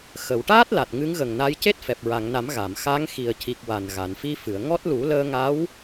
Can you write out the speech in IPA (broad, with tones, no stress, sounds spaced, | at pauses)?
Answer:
x ə˨˩˨ w ʈ aː˦˥ t̚ l a˨˩ t̚ ŋ ɨ˧˥ ŋ ɣ ə˨˩ ŋ n a˧˥ j c e˦˥ t̚ f ɛ˨˩ p̚ ɹ a˨˩˨ ŋ n a˨˩˦ m ɣ a˨˩˨ m x a˧˥ ŋ x i˨˩ ə̯ c i˨˩ k̚ w a˨˩ n ɣ a˨˩˨ n f i˧ f ɨ˨˩˨ ə̯ ŋ ɔ˦˥ t̚ l u˨˩˦ l əː˧ ŋ a˧˥ w